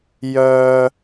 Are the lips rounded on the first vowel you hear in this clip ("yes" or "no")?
yes